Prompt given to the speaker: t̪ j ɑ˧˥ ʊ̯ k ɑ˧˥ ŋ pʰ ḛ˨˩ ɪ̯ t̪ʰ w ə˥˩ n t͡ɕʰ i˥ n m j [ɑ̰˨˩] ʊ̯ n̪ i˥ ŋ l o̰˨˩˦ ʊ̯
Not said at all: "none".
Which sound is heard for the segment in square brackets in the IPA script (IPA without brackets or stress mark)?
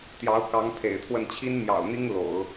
ɑ̰˨˩